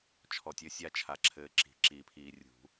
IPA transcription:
t͡ʃʰ ɔ˨ tʲ ɘ˨˦ sʲ a˦ t͡ʃʰ a˨ ǁʰ ɘː˨˦ ǁ i̤˨˩˦ ǁ i˨˩˦ pʰ iː˨ rʲ ṳ˨˩˦

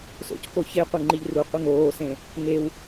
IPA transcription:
s o̰ c k o ç e qʷ e ŋ͡ǃ i ʎ r u qʷ i ŋ oː s ẽ | ŋ e w

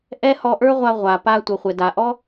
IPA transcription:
ʔ ɛ˥ h ɔ˧ ʔ ə˞˥ ʁʷ a˧ ʁʷ a˩ p a˧ tʷ ʌ˩ χʷ ɛ˩ d a˩ ʔ ɔ˥

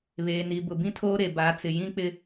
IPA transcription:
β eː˨ n i˨ b ʊ˨ b ĩ˦ tʰ oː˦ ɾ e˨ b aː˨˦ t͡s ɪ˨ j ĩ˦ k͡p ɪ˦

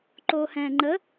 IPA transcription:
ǃ oː h ɛ̃ː ŋ͡ǃ ə

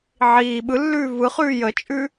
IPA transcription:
ʕ iː ɓ ɯ lː ʉː v ɯ χ ʉː j ə t͡ʃʼ ʉ

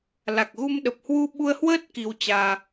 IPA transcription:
l a˨˩ k̚ ɣ u˧ m ɗ ə˨˩ p̚ h w u˧ ɓ u˧ ə̯ h w əː˦˥ t̚ k i˧ w t͡ɕ aː˧

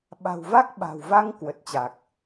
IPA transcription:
ɓ a̤˨˩ w v a˦˥ k̚ ɓ a̤˨˩ w v a˧ ŋ k w ə˨˩ t̚ t͡ɕ a˨˩ k̚

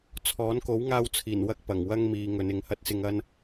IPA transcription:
t͡sʰ ɔː˨˥ n k o˨˥ w ŋ aː˧ w t͡sʰ iː˨˩ n w ɐ˧ k̚ p ɐ˨˩ ŋ w ɐ˧ ŋ m iː˨˧ ŋ ɵ˨˧ n ɪ˨˥ ŋ h ɐ˧ t̚ s ɪ˧ ŋ ɐ˥ n

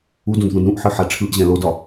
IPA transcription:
u d ũ d ð ũ d ɾ ũ ʔ ħ ɨ ħ a ʈ͡ʂʰ ɯ ʔ ʑ ɛ̃ l o d ɒ

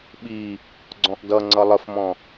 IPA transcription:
ɓ i | ɡ͡ǀ ɔ̃ ʔ d ʌ ŋ͡ǀ ʌ lˠ ə f m ɔ̃

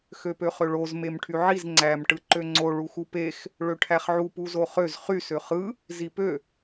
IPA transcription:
x ø p ø χ ø ɭ o z m e m ʈʰ y ʕ i z ŋ͡ǀ æ m ʈ ɯ ǃ ø ŋ͡ǀ o ɭ u x u p e x | ɭ ø ʈʰ æ χ ʕ u p u z o χ ø z χ y s ø χ ɯ | z i p ø

